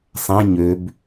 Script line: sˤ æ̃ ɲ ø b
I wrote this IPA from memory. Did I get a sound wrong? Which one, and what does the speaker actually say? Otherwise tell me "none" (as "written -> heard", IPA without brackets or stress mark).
none